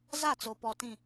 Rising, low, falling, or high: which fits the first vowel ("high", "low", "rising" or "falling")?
falling